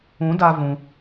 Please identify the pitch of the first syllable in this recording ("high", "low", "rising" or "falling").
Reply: rising